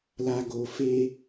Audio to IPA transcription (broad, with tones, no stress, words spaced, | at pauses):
la˨ ɡo˨ fe˦